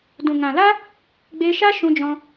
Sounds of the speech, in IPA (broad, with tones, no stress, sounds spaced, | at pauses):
d ũ˨ ŋ ã˨ l a˦ | ɡ͡b e˧ ʃ a˦ ʃ ũ˧ d͡ʒ ɔ̃˧